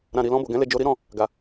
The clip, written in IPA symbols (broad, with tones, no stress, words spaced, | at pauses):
ɾã˨ɾi˨ lɔ̃˧bo˨ɡɛ̃˨˦le˧ d͡ʒo˧ɾi˦ɾɔ̃˦˨ | ɡa˨